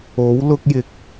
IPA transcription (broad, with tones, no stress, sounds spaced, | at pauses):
o˨˥ w l ʊ˧ k̚ j ɪ˨ k̚